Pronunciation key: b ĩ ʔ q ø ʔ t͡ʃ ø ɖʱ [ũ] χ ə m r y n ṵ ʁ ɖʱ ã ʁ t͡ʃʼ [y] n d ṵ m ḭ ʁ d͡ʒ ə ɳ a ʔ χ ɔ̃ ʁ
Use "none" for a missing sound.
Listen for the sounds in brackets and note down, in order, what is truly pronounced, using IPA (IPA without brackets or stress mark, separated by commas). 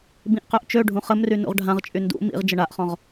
ũ, y